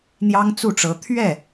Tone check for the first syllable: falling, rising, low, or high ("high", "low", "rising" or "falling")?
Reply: high